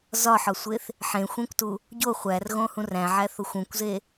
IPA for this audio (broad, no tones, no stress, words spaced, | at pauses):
zɒħɒsʷeθ | ħẽxʷẽkʷtu | ɟo χʷærɣõhũr æ̃ʕæθoxʷ ũkʷze